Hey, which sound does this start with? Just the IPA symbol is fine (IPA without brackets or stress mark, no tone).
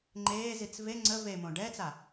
ŋ͡ǃ